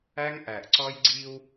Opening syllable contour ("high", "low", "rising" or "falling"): high